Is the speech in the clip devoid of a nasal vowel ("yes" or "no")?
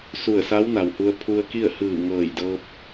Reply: yes